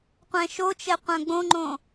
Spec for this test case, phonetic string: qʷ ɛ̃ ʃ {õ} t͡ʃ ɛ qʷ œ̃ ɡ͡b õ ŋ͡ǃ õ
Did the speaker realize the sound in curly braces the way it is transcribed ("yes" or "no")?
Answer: no